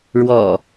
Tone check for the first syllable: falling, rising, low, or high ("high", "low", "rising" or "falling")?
low